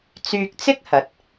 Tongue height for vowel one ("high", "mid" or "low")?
high